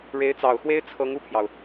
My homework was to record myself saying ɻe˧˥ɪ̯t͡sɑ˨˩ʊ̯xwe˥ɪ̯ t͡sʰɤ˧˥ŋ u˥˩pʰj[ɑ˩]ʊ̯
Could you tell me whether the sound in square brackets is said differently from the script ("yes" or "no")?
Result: no